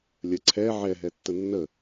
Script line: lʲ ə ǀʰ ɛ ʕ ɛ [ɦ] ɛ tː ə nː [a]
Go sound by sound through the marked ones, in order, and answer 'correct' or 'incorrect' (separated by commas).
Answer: correct, incorrect